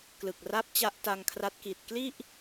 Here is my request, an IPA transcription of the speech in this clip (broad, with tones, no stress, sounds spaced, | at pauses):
k l ɯ˨˩ k̚ r a˥˩ p̚ t͡ɕ a˦˥ ʔ t a˧ ŋ kʰ r a˦˥ t̚ k i˨˩ t̚ k l i˥˩ ʔ